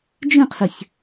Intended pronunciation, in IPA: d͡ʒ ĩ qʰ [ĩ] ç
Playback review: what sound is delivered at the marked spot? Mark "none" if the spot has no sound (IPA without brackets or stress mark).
i